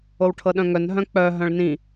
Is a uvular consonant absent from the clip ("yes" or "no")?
yes